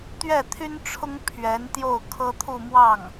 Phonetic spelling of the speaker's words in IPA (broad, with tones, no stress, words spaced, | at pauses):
t̪ɥɛ˥˩t̪ʰy˥nʈ͡ʂʰʊ˥ŋ pʰɥɛ˧˥nt̪jo˥˩ʊ̯kʰɤ˥ t̪ʰu˥˧mwɑ˥˩ŋ